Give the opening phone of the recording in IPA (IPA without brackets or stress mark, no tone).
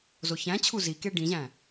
z